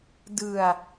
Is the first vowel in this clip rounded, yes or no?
no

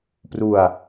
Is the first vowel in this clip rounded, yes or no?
yes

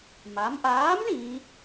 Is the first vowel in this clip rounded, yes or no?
no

